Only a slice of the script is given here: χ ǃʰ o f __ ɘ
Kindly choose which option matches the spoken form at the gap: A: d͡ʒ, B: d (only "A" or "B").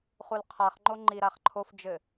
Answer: A